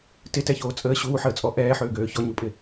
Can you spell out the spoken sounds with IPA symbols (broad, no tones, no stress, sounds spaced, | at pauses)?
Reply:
t ɪ t ɛ ç oː t͡sʼ əː ɕ uː ħ əː t͡sʼ ɔ ʔ ɛː ħ øː ɡ øː ç ɔ ɲ u pʼ ɪ